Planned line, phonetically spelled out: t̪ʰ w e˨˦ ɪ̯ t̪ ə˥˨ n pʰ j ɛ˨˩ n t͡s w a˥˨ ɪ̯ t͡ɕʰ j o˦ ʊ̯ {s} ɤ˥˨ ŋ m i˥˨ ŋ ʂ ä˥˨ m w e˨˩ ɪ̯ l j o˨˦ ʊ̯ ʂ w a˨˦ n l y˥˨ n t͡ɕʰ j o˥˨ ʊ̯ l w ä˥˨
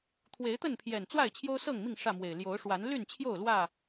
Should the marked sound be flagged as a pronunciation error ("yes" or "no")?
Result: no